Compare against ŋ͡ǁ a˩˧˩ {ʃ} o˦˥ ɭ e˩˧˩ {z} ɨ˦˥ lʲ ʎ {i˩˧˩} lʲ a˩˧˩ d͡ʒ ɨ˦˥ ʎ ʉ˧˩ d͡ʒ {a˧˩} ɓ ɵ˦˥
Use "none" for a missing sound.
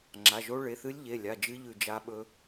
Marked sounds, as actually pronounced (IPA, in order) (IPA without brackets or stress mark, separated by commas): ʒ, θ, e˩˧˩, a˦˥